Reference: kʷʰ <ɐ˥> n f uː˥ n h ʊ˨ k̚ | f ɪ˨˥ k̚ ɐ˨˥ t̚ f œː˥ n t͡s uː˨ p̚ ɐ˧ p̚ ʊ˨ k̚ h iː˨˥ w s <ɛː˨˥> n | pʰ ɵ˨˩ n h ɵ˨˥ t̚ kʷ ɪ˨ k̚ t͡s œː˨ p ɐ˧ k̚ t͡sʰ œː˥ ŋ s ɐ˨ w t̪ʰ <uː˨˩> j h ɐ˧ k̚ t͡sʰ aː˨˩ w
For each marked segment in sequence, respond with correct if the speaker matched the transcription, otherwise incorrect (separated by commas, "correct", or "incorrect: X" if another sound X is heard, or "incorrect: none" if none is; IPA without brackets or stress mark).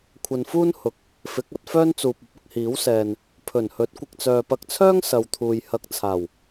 incorrect: ɐ˨, incorrect: ɛː˨, incorrect: uː˨